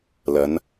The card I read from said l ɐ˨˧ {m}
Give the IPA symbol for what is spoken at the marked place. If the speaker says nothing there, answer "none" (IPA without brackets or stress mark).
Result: n